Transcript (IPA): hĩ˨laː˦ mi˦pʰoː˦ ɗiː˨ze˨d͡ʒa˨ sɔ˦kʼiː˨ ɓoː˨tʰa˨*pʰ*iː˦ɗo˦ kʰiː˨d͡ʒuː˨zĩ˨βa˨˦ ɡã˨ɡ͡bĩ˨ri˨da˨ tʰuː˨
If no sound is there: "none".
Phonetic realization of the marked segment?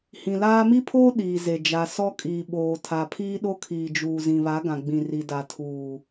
pʰ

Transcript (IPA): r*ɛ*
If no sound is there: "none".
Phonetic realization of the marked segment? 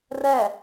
ɛ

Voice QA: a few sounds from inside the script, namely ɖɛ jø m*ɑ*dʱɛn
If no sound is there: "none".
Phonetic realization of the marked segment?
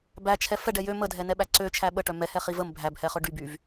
ə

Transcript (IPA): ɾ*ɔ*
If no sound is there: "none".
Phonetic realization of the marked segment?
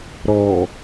ɔ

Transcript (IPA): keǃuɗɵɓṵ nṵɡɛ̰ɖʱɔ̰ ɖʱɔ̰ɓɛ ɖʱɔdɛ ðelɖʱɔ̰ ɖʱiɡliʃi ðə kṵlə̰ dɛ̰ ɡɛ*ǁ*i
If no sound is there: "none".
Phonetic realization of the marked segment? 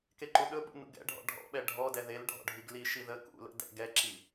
ǁ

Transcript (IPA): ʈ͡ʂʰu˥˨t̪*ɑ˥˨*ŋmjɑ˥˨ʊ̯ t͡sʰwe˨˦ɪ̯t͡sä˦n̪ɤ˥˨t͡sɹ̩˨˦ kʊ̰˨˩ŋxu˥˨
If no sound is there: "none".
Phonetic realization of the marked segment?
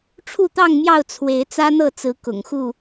ɑ˥˨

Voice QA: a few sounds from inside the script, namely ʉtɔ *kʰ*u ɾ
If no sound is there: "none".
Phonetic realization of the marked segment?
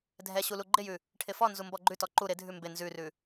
ǃ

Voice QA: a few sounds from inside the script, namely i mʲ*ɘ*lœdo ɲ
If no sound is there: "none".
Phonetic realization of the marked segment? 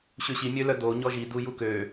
ø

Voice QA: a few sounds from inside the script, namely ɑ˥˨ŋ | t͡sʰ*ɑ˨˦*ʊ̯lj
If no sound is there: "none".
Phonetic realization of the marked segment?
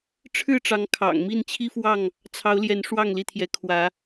ɑ˨˦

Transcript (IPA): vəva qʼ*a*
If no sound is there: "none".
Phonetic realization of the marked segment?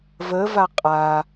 a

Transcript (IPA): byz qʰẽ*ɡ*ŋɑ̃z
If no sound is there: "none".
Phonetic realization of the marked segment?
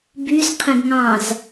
ɡ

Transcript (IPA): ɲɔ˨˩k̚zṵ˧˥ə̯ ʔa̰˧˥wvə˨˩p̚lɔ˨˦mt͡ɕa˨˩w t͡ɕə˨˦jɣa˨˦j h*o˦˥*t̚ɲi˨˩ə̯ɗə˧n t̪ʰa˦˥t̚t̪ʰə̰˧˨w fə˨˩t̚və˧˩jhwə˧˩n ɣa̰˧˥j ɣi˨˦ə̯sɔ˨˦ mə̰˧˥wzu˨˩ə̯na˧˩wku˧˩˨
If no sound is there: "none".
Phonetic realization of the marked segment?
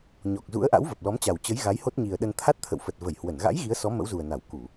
o˦˥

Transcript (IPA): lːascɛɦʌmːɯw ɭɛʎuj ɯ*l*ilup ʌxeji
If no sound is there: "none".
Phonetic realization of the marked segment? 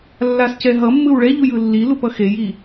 lː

